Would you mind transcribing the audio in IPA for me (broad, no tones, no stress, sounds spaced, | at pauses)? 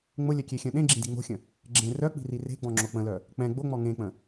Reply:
ŋ͡m ʊ lʲ œ kʲ e xʲ œ̃ ɗ ẽ ɡ͡ǁ ĩ d i ŋ͡m o̤ xʲ ə̃ | ɡ͡ǁ ẽ r œ k͡p i̤ r i r e̤ ɡ͡b ɔ̃ ŋ͡ǁ o k͡p ə̃ l œ | k͡p ɛ̃ ɡ͡b o ŋ͡m ɔ ŋ ẽ k͡p ə̃